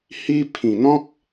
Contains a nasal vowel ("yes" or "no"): yes